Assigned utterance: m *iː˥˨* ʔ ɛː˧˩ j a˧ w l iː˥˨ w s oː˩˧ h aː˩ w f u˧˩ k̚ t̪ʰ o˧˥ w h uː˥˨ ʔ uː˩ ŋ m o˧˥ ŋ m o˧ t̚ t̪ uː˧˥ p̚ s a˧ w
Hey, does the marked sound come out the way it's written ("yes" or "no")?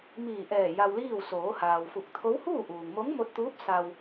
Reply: no